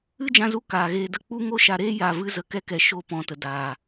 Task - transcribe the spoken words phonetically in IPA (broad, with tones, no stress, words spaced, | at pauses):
ɨ˦d͡ʒã˧zu˧ kaː˨ɣeː˧də˦ k͡pu˦ ŋo˦ʃa˧ɾeː˦ ja˨vɨ˧ zə˧kɛ˦ kɛ˨ ʃo˧ pɔ̃˨˦tə˨ daː˨